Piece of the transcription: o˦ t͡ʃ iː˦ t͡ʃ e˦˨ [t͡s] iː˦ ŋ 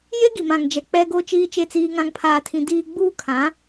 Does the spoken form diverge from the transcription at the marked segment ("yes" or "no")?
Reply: no